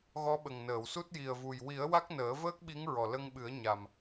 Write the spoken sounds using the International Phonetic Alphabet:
ɣ ɔ˧˥ ɓ ə˨˩ ŋ n əː˨˩˨ w s u˦˥ t̚ j i˨˩ ə̯ v u˨˩ j w i˨˩˦ ə̯ w a˦˥ k̚ n əː˨˩˦ v əː˦˥ k̚ ɓ i˧˥ ŋ ɹ ɔ˨˩ l ə˧ ŋ ɓ ɨ˨˩˦ ə̯ ɲ a˨˩ m

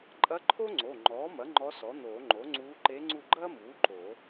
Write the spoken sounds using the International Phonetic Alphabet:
ǃʼ ɐ˧˥ ǃʰ o˥ ŋ͡ǀ o˩˧˩ ŋ͡ǃ ɔː˩˥ m ɐ˩˥ ŋ͡ǃ ɔ˧˥ s ɔ˩˥ n̪ oː˨˩˦ ŋ͡ǃ o˩˥ ŋ͡ǀ uː˧˥ ǃ e˧˥ ŋ͡ǀ u˦˨ ɡ͡ǃ ɐː˥ m uː˩˥ ǃ o˨˩˦

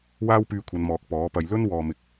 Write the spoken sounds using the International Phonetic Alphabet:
w aː˥ w p yː˧ kʷʰ ɐ˨˧ n m ɔː˨ k̚ p ɔː˨˥ p ɐ˧ j l ɵ˥ n w ɔː˧ m ɪ˧ k̚

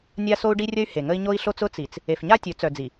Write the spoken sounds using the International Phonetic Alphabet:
nʲ a˦ s o˦ u̯ ɖ i˦ rʲ ə˦ y̯ h e˨ ŋ ə˦ i̯ ɲ o˦ i̯ ɬ o˦ t͡s ʊ˦ t͡s i˨ t͡s | e˨ f ɲ a˦ tʲ ɵ˨˦ t͡s œ˨ d͡z i˨

